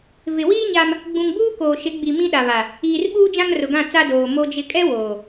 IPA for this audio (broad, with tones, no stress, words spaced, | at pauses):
vɪ˨ wiː˦ ɲa˦m | ɡ͡bũ˨ŋbuː˦koː˨ʃɪ˨˦ ɡ͡bi˨ mĩ˦ɗa˨βa˨ | iː˨rɓuː˦ d͡ʒã˦ŋrʊ˨ɡã˦˨ t͡sa˦doː˨ mo˦d͡ʒɪ˦ kʼɛ˦ woː˨